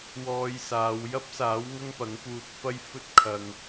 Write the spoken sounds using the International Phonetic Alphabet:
w ɔː˧ j s aː˨˧ w j ɐ˥ p̚ s aː˨˥ w ŋ ɐ˥ ŋ p ɐ˨˥ ŋ p uː˧ t̚ f ɐ˥ j f ɵ˥ t̚ kʰ ɐ˧ ŋ

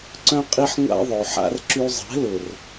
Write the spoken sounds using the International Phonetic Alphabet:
ǀ œ̃˦ qʼ i˦ ħ ŋʷ a̰˦ ðˤ o˨ ħ a̰˧ r ǁ y˧ zˤ ɛ̤˨˦ l ʊ˨ r

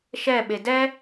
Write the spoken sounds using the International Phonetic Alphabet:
ʃ ɛ ɓ e d ɛ

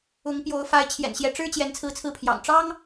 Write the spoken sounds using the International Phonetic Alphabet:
ʊ˧˥ ŋ p j o˧˥ ʊ̯ f a˧˥ ɪ̯ t͡ɕʰ j ɛ̰˨˩ n ɕ j ɛ˧˥ ʈ͡ʂ ɻ̩˥ t͡ɕ j ɛ˧˥ n t͡sʰ ɹ̩˥˧ t͡sʰ ɹ̩˥˩ pʰ j ɑ̰˨˩ ŋ ʈ͡ʂ ɑ˥ ŋ

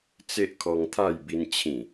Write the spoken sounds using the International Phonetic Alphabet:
t͡s e˦ ʔ kʰ ɔ˧ ŋ t̪ʰ a˥˧ j b i˧ n t͡ɕʰ ĩ˨˩

